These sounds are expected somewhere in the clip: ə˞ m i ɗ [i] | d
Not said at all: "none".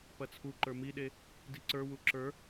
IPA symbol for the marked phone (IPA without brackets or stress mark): e